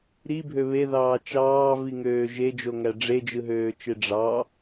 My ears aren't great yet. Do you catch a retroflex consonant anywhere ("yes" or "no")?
yes